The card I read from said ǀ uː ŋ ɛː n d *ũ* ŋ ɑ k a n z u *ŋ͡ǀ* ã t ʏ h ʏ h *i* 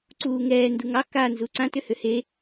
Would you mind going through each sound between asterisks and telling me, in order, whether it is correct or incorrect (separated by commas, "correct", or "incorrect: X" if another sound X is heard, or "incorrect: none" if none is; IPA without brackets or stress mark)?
incorrect: u, incorrect: ǀ, incorrect: e